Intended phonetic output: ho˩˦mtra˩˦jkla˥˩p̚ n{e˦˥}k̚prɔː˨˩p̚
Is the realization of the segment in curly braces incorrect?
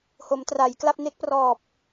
no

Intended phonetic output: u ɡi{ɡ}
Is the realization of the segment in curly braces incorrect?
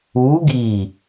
yes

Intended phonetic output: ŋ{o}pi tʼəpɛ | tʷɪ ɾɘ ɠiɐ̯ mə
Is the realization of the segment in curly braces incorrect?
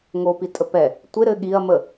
no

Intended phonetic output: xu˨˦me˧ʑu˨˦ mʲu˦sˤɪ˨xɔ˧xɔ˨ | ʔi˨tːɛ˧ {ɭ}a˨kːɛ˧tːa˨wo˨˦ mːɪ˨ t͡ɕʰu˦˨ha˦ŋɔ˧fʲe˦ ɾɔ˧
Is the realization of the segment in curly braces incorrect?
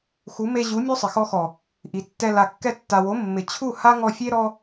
yes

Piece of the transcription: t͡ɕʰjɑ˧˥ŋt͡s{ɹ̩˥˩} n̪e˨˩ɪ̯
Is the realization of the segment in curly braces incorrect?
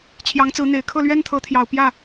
yes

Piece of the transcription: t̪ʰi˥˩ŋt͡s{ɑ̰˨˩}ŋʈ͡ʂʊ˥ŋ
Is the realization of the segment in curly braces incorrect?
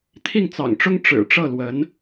no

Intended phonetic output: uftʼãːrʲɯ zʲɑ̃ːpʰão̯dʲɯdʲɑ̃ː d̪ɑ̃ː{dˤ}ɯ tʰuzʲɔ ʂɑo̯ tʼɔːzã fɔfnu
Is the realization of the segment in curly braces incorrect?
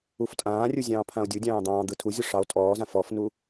yes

